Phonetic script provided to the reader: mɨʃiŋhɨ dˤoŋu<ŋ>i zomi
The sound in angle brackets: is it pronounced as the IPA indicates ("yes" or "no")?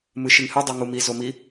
no